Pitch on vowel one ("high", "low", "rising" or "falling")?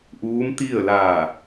rising